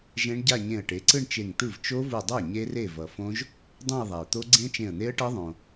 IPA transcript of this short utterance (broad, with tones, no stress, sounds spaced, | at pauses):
ʒ ẽ˦˥ ɳ ɟ a˥˧ ɲ ẽ˧˩ ə̯ ʈ e˩˥ ǀ ɯ˥˧ ɳ t͡ʃ e˧˩ ŋ t̪ ɯ˥˩ v t͡ʃ o˦˥ v u˧˩ dˤ a˥˩ ɲ e˦˥ r e˥˩ v ʌ˩ f õ˦˥ ʒ | dˤ õ˥˧ ɪ̯ ðˤ a˩ ʊ̯ t̪ o˦˥ ɡ͡ǀ ẽ˦˥ t͡ʃ ẽ˧˩ ə̯ n̪ e˦˥ ə̯ ʈ ʌ˦˥ ðˤ õ˩